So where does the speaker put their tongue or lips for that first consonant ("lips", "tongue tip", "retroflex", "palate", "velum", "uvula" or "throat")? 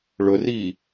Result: retroflex